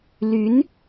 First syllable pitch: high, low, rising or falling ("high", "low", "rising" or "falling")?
rising